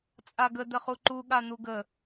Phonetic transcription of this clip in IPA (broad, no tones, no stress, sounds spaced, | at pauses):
t͡sʼ a ɡ ə d̪ ə χ u ǃ u ɠ a n̪ u ɡ ə